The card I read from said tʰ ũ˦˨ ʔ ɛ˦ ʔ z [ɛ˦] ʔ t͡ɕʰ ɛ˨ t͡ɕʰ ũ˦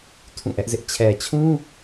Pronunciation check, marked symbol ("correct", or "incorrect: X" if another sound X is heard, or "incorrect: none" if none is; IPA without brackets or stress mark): incorrect: ɪ˦